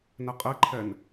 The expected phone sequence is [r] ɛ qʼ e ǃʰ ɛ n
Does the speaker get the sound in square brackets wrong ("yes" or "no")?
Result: yes